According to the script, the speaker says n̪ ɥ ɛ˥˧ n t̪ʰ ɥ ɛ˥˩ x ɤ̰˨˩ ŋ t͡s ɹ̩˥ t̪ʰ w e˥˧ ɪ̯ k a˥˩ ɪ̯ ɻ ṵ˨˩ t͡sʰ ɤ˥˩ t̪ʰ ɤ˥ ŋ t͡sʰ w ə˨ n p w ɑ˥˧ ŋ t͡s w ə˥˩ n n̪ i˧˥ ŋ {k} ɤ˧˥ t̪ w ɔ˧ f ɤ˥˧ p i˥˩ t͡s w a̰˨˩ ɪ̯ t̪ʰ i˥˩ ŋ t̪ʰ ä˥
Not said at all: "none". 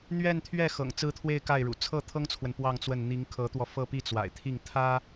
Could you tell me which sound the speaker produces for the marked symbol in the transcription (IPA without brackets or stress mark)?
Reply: kʰ